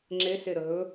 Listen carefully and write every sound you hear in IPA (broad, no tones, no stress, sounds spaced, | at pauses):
ŋ͡ǁ e s e ɾ ə ɦ ɵ